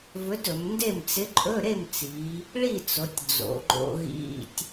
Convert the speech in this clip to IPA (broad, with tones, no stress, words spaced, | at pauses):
vɵ˧˥dɵ˩˧mnde˥˨m t͡sɪ˧˥ǃʼɵ˧˥˧ ɾe˥˨mt͡si˩˧ | ɭi˥˨t͡so˩˧tʲ d͡zo̰˩˧ɡ͡ǃo̰˧ɣḭ˧˥˧tʲ